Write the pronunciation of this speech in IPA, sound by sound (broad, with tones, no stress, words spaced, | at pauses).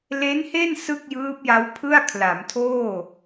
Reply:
le˦˥nhe˥˩n sɯ˥˩k̚jɯː˦˥p̚ja˦˥w pʰɯ˥˩a̯kʰla˩˦mtʰoː˥˩